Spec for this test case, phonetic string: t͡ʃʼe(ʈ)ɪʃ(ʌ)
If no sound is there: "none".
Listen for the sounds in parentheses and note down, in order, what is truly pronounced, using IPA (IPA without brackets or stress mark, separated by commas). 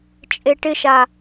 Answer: ʈ, a